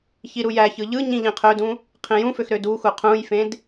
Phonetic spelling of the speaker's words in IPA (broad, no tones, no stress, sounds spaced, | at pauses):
ç i ɾ u j æ ç ɯ ʎ ɯ ɲ ĩ ʎ ĩ qʰ ø d ũ | qʰ ĩ j ũ f ø x ɾ ø d u x u qʰ ũ j f ẽ d